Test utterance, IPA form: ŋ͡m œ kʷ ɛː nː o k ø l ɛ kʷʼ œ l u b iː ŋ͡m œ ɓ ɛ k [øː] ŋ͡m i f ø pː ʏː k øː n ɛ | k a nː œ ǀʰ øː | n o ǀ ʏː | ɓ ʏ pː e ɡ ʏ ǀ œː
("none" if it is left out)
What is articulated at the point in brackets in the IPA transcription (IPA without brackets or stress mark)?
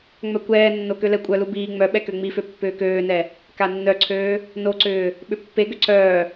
ø